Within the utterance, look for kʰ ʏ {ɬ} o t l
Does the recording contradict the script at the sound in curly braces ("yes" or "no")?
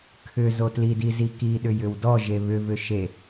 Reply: yes